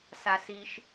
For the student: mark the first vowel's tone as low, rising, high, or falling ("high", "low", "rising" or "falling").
low